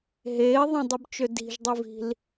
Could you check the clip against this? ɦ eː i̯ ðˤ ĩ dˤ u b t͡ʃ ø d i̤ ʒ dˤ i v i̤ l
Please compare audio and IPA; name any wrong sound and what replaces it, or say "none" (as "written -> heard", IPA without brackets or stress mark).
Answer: none